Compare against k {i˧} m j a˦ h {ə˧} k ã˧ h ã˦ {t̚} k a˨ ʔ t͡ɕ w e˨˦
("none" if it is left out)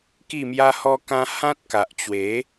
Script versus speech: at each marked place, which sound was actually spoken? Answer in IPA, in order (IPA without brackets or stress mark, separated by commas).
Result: i˥˧, ɔ˧, t̚